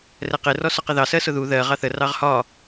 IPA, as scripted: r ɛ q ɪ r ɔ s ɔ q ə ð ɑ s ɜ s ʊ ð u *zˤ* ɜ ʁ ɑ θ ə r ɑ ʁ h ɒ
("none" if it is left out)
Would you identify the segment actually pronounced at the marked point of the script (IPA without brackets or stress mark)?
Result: ð